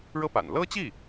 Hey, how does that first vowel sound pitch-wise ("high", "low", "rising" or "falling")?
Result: high